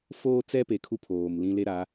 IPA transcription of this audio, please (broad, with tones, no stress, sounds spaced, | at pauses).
f oː˦ t͡s ɛ˦ p e˨ kʰ u˦ pʰ oː˨ m l ĩ˦ l e˦ ɾ a˨˦